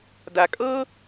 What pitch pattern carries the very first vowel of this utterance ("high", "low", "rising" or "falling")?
low